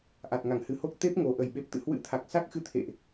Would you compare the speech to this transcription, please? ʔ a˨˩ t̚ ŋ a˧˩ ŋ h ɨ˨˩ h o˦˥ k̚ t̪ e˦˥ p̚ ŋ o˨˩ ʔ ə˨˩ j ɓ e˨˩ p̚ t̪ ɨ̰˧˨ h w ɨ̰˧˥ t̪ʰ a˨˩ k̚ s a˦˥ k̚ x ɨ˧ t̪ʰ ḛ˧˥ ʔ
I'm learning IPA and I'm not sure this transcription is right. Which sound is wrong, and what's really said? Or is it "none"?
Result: ḛ˧˥ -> ḛ˧˨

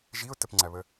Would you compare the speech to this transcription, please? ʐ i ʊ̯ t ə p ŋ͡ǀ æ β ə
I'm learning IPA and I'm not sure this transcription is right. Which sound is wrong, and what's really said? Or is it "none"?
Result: ʐ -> ʒ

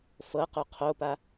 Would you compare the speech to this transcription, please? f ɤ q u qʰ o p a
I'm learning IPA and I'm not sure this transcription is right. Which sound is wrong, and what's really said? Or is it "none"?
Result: none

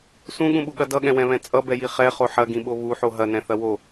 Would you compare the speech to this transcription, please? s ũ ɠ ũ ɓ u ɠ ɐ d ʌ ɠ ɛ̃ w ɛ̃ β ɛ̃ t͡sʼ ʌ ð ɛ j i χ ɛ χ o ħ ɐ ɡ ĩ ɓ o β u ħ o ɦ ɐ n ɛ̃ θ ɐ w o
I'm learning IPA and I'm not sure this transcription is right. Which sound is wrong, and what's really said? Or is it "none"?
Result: ð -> b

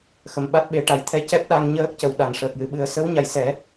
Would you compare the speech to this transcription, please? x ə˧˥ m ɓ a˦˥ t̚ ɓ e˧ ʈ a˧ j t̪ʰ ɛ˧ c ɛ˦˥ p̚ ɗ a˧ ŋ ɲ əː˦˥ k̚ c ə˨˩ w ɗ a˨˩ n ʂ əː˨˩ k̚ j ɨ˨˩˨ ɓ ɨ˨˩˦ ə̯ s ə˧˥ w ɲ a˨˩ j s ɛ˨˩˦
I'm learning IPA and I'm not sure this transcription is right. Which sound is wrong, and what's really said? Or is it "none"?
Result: none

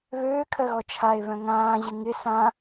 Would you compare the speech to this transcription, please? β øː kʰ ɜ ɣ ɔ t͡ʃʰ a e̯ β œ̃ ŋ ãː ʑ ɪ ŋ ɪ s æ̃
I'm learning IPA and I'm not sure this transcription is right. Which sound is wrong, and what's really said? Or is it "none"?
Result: æ̃ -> ã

